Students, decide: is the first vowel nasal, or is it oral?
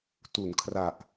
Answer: oral